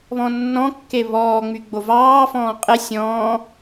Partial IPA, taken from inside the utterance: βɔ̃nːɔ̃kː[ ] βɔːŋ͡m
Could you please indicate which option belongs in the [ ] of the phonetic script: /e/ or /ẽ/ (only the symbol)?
e